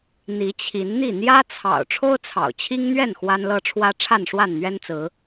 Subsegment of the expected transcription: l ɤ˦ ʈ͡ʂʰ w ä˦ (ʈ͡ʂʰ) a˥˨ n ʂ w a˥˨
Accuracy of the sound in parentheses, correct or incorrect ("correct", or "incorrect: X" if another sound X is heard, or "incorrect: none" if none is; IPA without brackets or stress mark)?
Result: correct